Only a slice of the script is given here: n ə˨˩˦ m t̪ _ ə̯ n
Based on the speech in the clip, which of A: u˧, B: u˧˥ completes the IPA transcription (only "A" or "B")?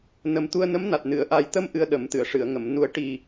A